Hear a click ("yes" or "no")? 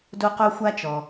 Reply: no